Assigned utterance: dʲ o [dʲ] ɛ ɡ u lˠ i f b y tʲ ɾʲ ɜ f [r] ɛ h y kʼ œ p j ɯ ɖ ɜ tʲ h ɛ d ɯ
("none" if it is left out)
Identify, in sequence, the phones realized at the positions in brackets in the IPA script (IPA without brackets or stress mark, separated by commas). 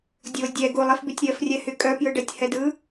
dʲ, rʲ